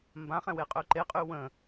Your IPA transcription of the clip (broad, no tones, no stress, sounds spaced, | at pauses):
m b ã χ ɛ̃ w e qʼ ø ǃ e qʼ y w ə̃